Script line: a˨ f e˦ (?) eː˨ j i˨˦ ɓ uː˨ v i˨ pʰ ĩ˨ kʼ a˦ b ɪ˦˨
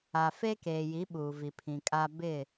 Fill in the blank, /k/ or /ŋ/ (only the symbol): k